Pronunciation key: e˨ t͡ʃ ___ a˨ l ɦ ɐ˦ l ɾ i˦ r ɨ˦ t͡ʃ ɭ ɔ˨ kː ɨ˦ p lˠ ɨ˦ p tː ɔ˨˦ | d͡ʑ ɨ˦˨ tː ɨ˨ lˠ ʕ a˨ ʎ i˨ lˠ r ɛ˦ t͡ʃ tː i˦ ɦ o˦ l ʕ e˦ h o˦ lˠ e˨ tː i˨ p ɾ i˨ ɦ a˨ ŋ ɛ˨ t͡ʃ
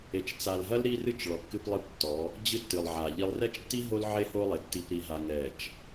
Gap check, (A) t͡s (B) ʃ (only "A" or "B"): A